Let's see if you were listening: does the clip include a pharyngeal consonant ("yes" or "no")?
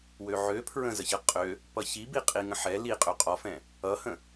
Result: yes